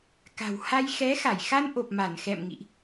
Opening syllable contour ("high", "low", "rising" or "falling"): low